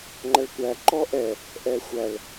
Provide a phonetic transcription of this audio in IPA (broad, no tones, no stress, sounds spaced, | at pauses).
ŋ͡ǃ ɐ ɭ kʷ æ ǃ ɔ ʔ ɛ | ʔ ɛ xʷ æ ɭ